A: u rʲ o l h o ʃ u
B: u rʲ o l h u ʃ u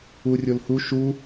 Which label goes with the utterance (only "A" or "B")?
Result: B